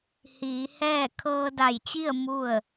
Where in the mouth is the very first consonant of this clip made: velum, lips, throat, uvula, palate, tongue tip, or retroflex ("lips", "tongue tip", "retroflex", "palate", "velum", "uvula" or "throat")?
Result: throat